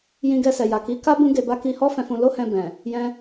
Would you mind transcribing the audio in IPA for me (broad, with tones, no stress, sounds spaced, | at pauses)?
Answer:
j ĩ˧ ɡ ɛ˧ s ɛ˨ j a˨ k i˨˦ k a˦ b ũ˦ ɡ e˧ b a˦ k i˧ h ɔ˦ f ɛ̃˧ f ũ˧ l o˦ h ɛ̃˧ b ɛ̃˨ | j ɛ̃˦